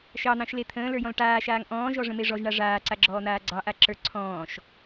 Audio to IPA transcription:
ʃɑn̪ɑ̃ʃle t̪ʰə̃ːlə˞jɔ̃l ʈaːʃaːŋ ʔɔ̃ːʒɔʐə̃me ʐɔʒɳa ʐaːǀaɡ͡ǁɔːn̪aː ɡ͡ǀɑʔaǁə˞ ǀʰɔ̃ːʃ

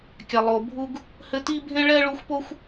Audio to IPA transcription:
kʲa˨lˠo˨bʱu˦ɡ | hɘ˦ti˥bʱẽ˥ ɭɛ˥ɭu˦xʷpo˥xʷ

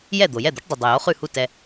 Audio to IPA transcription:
jɛ˥˩ d̪o˩jɛ˥˩d̪o˩˥ʈdˤʉ˩ dˤo˩jo˥χʉ˥˩hu˥˩ tɛ˧

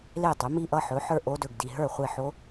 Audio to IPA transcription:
le˥˩tˤɵ˩˥ mi˥˩ʔʌ˥˩ħɵ˩˥ ħə˞˥˩ʔo˦˥dɵ˨ɡ di˨ɦə˞˥˩ χʷe˥˩ħo˦˥

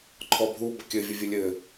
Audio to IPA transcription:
ǃʰɔbʱu bəkʲɘ vʲəvʲɘlʲɘ

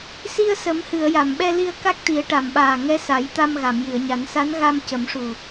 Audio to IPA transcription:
si˧ə̯sə˨˩˦m hɨ˨˩˨ə̯ja˨˩˨mɓɛ˧li˧ə̯ ka˦˥k̚t̪i˨˩˦ə̯ʈa˨˩˨mɓaː˨˩ ŋɛ˧˥sa˨˩˦j t̪a˧mɣa˨˩˨mjɨ˨˩˨ə̯ɲa˨˩˦n sa˧˥n ɣa˧m cə˨˩˦mʂu˨˩

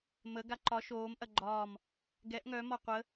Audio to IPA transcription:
mə ɡaǃɒ ʃoːm ʔɐɡ͡ǃɒːm | ɡɛʔ ŋœ mɒqʷə

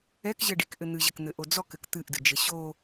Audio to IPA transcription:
ɛkʑɘɖikʔɘ n̪ɨʑɘkn̪ɘʔo d͡zɔkɘk t̪ɨʔdɨd͡ʒɘ ɕo

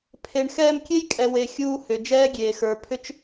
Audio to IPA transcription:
pʰe˨ɳxɛː˧mkʲe˦jkʼɛ˨ we˨xʲuː˧ hʏ˨d͡ʒɛː˦ɡʲeː˨ xə˞˨ pʰʏ˦t͡ʃ

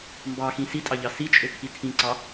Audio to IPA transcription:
mbɑxĩ sitʼɑʎɑ sit͡ʃʼøkʰi tʰĩǀɑ

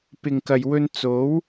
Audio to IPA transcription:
pɪ˨ŋkɐ˨jwɵ˧n t͡so˨˥w

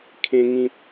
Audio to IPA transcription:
kʰẽ˦ŋĩ˦p̚

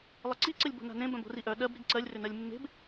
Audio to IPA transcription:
lˠɘǀiǀɘlʲ bo̤na̤nẽbœ̃b o̤riʔœ ɗɜb ɾiɡǀɜlʲrʏ nɜlʲmːe̤b

